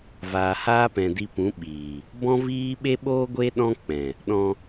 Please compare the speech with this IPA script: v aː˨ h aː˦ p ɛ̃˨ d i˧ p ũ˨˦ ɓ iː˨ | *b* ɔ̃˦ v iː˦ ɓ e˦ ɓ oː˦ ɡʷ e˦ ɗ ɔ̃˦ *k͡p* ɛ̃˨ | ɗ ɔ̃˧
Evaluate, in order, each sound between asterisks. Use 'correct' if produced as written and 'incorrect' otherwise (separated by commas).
correct, correct